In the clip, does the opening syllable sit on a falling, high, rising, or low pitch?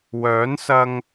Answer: rising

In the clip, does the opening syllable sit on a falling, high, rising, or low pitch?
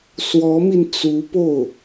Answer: rising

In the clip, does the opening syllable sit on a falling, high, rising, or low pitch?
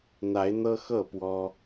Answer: rising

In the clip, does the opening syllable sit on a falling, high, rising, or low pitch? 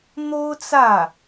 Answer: high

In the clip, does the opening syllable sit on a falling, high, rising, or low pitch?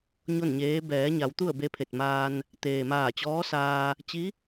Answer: falling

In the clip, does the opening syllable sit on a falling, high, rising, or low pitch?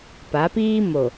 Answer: rising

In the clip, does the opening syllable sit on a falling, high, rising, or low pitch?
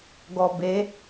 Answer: low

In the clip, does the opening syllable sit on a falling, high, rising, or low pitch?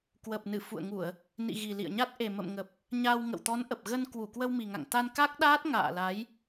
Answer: low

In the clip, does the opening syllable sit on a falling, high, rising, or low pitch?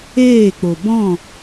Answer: falling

